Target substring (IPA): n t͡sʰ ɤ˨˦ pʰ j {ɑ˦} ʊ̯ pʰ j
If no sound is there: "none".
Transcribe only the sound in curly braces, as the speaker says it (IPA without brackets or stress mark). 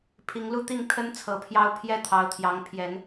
ɑ˦